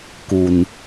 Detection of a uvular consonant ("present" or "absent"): absent